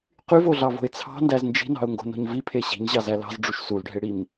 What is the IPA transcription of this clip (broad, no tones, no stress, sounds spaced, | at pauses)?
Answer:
q y v o ɮ ɑ v o̤ ɪ̯ t͡sʰ ɑ̤ n d æ z n d͡ʒ i̤ n ɑ̤ ʊ̯ ŋ ɡ o̤ n o̤ ɲ v i pʰ e ɕ i̤ ɲ ʑ ɑ z æ l ɑ̤ z ɖ͡ʐ u ʃ s u l ɖʱ e ɽ i m